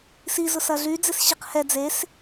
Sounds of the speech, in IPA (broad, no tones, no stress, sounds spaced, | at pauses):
s i z ʊ s ɐ ɮ y d͡z ɪ s ɕ i q h ɛ d͡z e s